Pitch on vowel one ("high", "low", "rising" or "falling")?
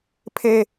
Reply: high